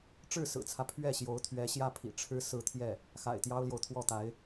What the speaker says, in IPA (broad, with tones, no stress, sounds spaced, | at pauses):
ʈ͡ʂ ɻ̩˥˩ s ɹ̩˨˩ t͡sʰ ä˦ pʰ ɥ ɛ˥˩ ɕ j o˧˥ ʊ̯ t̪ʰ ɥ ɛ˧˥ ɕ j ä˥˩ pʰ ḭ˨˩ ʈ͡ʂʰ ɻ̩˥ s ɹ̩˥˧ t̪ʰ j ɛ˥˩ | x a̰˨˩ ɪ̯ t̪ j ɑ˥ ʊ̯ l j o˨ ʊ̯ t̪ʰ w ɔ˥˩ t̪ a˧˥ ɪ̯